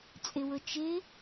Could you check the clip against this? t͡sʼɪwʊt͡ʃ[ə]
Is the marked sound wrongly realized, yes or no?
yes